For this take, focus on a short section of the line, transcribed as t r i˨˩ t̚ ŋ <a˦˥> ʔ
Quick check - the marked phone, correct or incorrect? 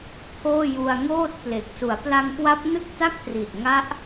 correct